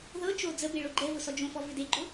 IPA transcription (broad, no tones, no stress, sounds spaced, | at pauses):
ð ɤ t͡ʃ o d͡z ə b e ɭ o ɡ͡ǃ ɛ v ʊ s ɔ d͡ʒ õ f ɔ v ʏ d e ɡ͡ǃ ʊ